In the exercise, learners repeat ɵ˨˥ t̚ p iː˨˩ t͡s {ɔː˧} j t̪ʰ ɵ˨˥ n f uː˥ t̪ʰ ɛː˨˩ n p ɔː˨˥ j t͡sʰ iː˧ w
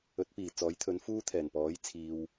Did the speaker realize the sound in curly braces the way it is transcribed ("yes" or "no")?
no